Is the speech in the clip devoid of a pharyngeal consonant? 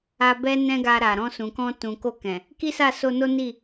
yes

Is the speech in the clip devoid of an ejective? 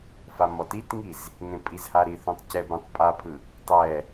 no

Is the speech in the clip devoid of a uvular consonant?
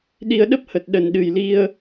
yes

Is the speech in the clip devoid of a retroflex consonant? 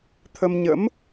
yes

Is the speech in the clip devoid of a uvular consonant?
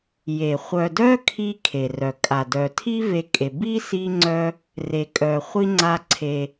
no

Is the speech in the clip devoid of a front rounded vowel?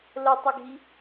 yes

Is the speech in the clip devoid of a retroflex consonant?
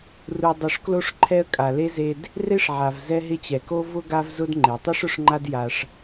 no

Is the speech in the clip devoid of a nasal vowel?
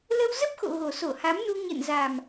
yes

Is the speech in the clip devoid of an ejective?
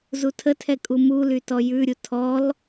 no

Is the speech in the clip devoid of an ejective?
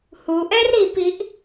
yes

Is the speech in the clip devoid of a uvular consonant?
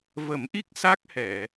yes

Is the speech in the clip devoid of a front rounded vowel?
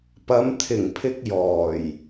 yes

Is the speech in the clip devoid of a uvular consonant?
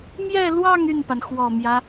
yes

